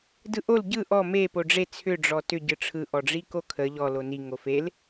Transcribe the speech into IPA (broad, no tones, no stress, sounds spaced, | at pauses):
d ɯ ʔ o l ɟ ɯ ʔ ɔ m e p o ɖ͡ʐ e t͡sʰ ʏ ɖ͡ʐ ɔ t ʏ ɟ ɯ ʈ͡ʂʰ ɯ ʔ ɔ ɖ͡ʐ i k o kʰ ə ʎ ɔ l o n i ŋ o f e l